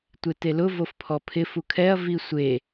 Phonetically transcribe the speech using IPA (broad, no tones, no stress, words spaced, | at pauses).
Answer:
tʷetelʊ vofpʰɔpʰɪ fukʰɛɐ̯ visʷe